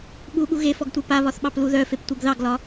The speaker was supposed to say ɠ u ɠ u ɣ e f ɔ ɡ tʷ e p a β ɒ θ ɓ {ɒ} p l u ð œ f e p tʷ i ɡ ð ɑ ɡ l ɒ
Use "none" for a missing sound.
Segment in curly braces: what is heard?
ɑ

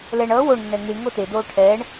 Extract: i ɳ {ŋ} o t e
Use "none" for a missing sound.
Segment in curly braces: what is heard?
ŋ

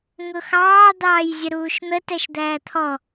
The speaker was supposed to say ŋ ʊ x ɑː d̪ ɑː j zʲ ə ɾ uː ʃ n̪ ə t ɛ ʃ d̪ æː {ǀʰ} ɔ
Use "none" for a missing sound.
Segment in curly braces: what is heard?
t̪ʰ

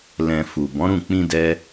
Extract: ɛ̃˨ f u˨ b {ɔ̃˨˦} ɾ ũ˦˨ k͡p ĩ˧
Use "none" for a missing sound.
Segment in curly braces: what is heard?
ɔ̃˨˦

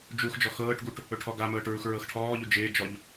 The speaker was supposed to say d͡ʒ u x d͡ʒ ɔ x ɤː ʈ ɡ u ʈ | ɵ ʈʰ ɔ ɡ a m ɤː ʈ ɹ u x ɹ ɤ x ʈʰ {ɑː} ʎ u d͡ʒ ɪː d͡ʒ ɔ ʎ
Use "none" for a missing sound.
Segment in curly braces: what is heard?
ɔː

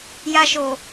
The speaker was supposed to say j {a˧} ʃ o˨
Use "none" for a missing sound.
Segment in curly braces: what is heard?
a˧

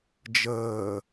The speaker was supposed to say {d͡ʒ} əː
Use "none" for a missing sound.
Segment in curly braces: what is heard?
d͡ʒ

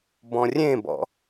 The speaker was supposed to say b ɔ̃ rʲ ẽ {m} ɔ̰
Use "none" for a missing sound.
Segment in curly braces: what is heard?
b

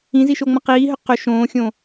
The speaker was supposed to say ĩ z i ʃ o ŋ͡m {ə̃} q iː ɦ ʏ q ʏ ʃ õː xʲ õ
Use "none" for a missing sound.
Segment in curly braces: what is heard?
ɐ̃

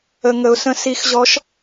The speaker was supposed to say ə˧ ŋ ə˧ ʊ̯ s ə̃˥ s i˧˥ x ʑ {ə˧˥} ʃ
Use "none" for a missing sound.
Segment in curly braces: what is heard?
ɔ˧˥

